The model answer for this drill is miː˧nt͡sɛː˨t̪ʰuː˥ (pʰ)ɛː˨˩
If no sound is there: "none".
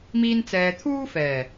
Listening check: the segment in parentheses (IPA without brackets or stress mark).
f